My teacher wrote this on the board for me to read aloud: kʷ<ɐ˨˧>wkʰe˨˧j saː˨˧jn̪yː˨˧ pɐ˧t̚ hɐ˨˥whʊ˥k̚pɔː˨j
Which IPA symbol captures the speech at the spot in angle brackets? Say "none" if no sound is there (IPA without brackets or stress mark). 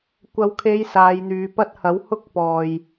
ɐ˨˧